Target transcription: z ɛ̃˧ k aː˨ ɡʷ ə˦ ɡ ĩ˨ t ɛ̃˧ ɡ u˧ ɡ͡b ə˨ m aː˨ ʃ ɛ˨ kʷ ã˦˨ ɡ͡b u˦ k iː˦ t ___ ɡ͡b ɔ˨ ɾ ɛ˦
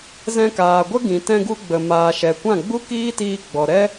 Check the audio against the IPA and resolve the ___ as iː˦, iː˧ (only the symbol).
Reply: iː˧